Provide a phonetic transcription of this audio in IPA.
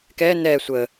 k ɛː n ɛː sʷ əː

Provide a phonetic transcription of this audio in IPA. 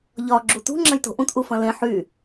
ʎ ɒ ɡ͡ǁ u t ṳ ŋ͡ǁ ɐ̃ j t o̤ ʔ ũ t ʔ u f ɐ̃ l ẽ ħ y

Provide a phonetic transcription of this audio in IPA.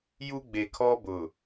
j u˦ ɡ͡b e˨ kʰ ɔ˦ b ʊ˨

